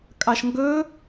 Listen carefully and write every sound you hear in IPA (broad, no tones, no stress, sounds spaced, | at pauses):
kʼ ɑ ʃ ŋ ɡ ɵ